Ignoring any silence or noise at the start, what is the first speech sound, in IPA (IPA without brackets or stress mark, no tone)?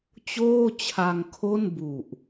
t͡ɕ